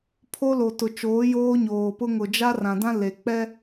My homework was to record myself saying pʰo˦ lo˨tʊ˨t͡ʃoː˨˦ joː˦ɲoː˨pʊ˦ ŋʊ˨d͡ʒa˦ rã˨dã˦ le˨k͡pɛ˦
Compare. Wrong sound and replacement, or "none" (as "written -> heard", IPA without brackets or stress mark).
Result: none